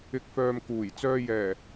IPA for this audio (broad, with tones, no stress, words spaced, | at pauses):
ɪ˨k̚fœː˨m kuː˨˩j t͡sœː˧jɛː˨˩